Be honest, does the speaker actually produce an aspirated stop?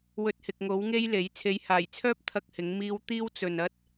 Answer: yes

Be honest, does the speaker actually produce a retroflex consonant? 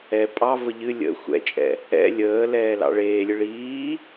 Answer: yes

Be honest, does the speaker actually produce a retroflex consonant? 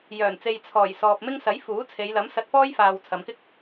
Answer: no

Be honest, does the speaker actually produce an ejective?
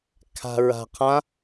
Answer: no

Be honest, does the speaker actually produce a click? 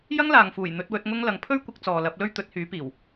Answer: no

